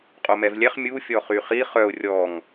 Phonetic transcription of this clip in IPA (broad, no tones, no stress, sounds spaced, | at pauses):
qʼ o m ɛ v lʲ ɛ χ mʲ u fʲ ɔ χ y χ i χ œ ʊ̯ rʲ ɔ ŋ